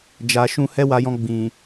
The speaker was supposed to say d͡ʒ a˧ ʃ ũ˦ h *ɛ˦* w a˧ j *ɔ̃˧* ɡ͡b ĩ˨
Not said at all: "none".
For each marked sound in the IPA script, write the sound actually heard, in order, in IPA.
ɛ˦, ɔ̃˧

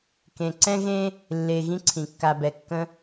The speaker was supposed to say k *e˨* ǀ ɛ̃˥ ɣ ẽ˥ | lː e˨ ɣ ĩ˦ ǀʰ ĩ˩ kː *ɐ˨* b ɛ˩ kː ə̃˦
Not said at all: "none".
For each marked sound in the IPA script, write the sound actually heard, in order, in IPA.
ẽ˨, a˨

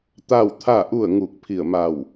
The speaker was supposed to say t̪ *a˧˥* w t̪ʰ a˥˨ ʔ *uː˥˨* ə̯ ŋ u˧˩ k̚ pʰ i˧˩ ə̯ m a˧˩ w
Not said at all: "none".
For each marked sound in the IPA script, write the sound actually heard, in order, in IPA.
a˥˨, u˥˨

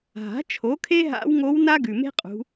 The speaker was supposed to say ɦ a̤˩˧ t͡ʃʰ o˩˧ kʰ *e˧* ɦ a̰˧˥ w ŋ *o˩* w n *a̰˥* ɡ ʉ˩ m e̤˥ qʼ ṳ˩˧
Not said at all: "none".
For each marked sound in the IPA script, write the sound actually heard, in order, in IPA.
e˧, o˧˥, a˥

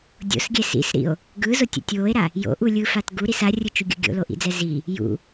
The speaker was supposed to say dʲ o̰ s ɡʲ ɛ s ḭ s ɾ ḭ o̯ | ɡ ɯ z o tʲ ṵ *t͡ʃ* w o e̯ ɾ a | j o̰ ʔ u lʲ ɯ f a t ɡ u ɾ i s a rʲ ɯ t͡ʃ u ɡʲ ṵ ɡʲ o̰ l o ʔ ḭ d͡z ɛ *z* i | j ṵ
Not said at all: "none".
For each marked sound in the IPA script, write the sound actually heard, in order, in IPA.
tʲ, z

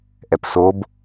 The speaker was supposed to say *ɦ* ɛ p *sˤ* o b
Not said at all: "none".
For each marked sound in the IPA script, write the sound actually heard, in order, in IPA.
ʔ, s

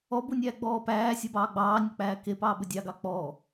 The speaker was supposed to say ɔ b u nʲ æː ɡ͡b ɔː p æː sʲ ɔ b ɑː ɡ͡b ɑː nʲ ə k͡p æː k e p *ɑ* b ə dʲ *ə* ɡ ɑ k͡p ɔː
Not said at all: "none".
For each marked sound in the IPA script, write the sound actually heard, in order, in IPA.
ɑː, ɑ

